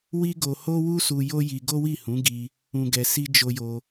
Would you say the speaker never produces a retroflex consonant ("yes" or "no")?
yes